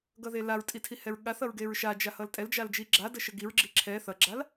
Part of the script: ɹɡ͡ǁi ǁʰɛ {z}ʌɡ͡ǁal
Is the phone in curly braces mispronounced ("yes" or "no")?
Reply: yes